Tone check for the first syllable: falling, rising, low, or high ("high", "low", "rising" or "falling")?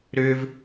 high